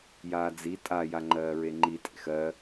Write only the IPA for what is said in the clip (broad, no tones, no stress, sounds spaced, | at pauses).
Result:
j aː d͡z i tʼ a j a ŋ͡ǃ ɜː ɹ e ŋ͡ǃ i tʼ ḛ x ɜ